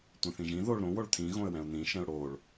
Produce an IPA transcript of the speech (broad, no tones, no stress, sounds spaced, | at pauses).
tʷ ɛ̃ θ ĩ ʒ ĩ ð o ɭ ɾ õ w o ɭ t̪ʰ ĩ ɣ õ ə̯ w ɛ̃ ʊ̯ n̪ ĩ ʃ ɛ̃ ʊ̯ ɽ o ɭ